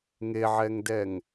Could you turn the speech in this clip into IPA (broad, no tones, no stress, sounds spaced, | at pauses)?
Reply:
ŋ e ʕ ɛ ŋ d ɛ ŋ